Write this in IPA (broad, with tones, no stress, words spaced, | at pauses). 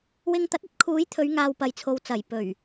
wɪ˧ŋ t̪ɐ˨˥t̚ɐ˨˥t̚ kʰuː˨˥jt̪ʰɵ˨˧ɥŋaː˨w pɐ˨jt͡sʰo˨wt͡sɐ˨˩j pɵ˨˩ɥ